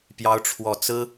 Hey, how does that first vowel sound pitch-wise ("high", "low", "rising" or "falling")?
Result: rising